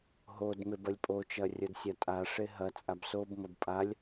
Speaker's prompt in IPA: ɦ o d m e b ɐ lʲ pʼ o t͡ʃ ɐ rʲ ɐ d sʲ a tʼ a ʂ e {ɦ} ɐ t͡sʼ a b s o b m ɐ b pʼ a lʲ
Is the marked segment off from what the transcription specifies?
no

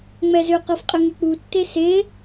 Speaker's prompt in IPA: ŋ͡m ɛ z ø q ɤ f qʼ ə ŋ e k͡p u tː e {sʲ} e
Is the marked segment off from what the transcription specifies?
yes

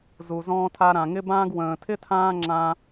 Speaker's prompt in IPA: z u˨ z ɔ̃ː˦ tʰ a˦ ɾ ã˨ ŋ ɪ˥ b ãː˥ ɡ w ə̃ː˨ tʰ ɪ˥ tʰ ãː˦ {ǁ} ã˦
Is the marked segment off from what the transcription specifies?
yes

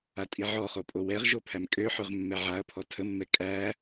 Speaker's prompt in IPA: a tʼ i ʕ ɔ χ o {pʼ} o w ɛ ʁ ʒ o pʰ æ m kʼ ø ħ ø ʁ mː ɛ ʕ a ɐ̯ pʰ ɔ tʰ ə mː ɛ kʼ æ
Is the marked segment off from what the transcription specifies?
no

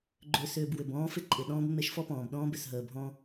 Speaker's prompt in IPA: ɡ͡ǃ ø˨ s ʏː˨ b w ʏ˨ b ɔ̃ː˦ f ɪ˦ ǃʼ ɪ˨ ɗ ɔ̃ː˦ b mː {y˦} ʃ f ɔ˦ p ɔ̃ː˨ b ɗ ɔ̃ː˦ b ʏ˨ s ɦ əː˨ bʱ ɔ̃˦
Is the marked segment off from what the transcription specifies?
yes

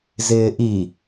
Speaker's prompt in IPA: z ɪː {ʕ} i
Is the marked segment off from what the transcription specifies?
yes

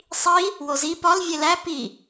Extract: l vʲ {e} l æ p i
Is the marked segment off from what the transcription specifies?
no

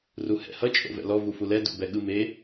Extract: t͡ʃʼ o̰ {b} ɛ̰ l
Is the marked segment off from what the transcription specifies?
yes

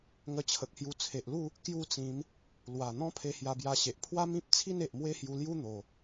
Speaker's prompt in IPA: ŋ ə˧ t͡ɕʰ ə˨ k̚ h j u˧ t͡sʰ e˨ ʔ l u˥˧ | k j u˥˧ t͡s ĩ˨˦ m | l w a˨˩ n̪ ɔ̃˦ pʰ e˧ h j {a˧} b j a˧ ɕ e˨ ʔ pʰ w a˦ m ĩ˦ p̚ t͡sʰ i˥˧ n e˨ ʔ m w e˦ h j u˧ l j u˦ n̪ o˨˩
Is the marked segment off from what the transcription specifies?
no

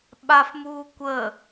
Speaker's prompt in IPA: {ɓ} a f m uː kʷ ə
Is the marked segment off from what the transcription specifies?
no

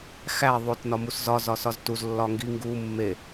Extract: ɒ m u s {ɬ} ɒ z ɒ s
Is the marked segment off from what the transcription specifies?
yes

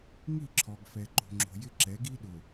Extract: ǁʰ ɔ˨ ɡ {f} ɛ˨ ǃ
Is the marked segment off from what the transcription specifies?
no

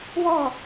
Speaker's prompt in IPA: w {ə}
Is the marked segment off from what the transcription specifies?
yes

